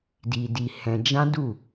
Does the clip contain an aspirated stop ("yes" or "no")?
no